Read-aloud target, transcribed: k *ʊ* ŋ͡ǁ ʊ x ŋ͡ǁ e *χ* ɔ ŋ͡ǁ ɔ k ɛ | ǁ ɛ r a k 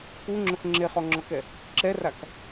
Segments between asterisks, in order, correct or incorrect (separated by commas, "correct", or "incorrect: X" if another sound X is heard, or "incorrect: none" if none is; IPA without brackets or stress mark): incorrect: u, correct